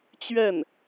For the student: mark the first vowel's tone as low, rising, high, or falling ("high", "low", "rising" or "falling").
falling